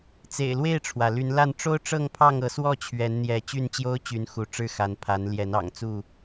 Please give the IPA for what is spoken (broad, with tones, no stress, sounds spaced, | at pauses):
t͡s ḛ˨˩ ɪ̯ l w e˥˨ ɪ̯ ʈ͡ʂʰ w ä˩ l y˨˦ n l a˥˨ n ʈ͡ʂ o˦ ʊ̯ ʈ͡ʂ ɤ˥˨ ŋ pʰ ɑ˥˨ ŋ ɤ˨˦ s w ɔ˥˨ t͡ɕʰ ɥ ɛ˨˦ n n̪ j ɛ˨˦ t͡ɕ y˥˨ n t͡ɕ j o˦ ʊ̯ t͡ɕ y˨˦ n x u˨˦ ʈ͡ʂ ɻ̩˥˨ x a˨˦ n pʰ a˨˦ n l j ɛ˨˦ n ɑ̰˨˩ ŋ t͡s u˥˨